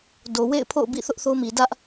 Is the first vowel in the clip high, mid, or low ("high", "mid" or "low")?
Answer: mid